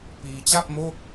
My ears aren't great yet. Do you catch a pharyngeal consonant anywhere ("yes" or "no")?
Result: no